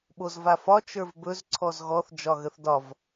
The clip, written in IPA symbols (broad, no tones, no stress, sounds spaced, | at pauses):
ɓ o z v a f ɒ t͡ʃ ə˞ v b ɵ z ǀʰ ɔ z ɣ ɔ θ d͡ʒ ɒ ɣ ə θ d ɒ v